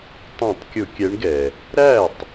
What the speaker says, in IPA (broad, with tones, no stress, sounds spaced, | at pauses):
tˤ ũ˧˩˧ tˤ kʲ ʊ˧˩˧ kʲ ɛ˨˦ ɳ ɡ ɛ˩ | ɾ æ˥˩ tˤ